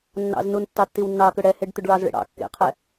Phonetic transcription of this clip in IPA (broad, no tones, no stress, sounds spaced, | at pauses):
nː ɑ̰ z n u n tː ɑ tː i w nː ɑ k ʏ ɽ ɛ h e ɖ t̪ ʏ ɖ ɭ ɑ z ɭ ḛ ɽ ɑ̰ kː ḛ qʰ ɛ